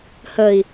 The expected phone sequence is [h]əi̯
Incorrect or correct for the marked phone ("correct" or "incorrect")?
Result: correct